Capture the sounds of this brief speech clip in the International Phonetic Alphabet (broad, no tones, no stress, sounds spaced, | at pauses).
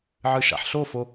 ʕ ɨ ʃ a̰ ħ ɬ o f o